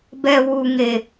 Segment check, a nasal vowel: absent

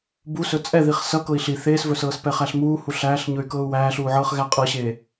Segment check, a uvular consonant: present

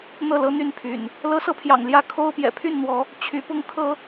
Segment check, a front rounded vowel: present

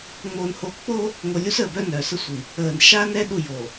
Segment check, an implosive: present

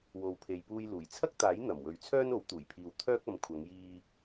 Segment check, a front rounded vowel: present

